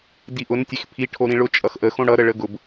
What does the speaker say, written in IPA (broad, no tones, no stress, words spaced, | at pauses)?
diʔʊn tʲexpʰi ʈʰoɾĩɭʊ t͡ʃʼʌxʔə xõɽʌ ɾəɭəɡʊb